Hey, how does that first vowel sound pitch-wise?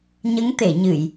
rising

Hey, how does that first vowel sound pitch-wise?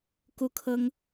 high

